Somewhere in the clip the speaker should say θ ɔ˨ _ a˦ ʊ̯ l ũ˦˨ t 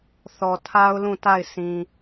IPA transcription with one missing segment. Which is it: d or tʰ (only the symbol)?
tʰ